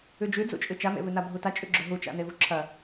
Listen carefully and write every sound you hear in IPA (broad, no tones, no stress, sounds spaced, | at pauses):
ʉ d͡ʒ ʉ d͡z ṵ t͡ʃʼ ɨ t͡ʃ a m ḛ v ɨ n a bʱ u t a t͡ʃʼ ʉ ɡ͡ǁ ɵ ɦ u t͡ʃ a̰ n e v u ǁʰ ɐ